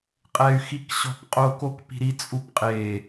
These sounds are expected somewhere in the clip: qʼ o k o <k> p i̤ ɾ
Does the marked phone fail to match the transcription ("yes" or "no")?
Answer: no